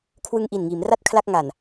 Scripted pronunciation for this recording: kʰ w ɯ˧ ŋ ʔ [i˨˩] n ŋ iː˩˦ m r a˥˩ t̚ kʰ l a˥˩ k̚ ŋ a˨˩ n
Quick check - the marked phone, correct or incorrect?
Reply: correct